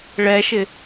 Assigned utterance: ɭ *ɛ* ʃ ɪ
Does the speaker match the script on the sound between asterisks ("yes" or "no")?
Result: yes